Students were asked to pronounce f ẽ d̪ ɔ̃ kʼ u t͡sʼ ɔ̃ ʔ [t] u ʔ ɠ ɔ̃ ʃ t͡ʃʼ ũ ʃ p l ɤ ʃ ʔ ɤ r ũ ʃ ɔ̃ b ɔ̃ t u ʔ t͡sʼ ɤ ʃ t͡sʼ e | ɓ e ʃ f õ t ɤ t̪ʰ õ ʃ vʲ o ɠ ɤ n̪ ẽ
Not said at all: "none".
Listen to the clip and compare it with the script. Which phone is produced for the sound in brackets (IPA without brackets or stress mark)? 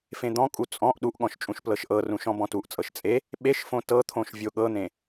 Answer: ɗ